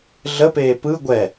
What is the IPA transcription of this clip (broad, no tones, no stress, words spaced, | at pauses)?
ɮəpeː pɯ ɡʷɛ